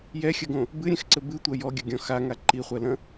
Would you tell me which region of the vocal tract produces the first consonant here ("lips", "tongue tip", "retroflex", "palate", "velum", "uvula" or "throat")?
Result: palate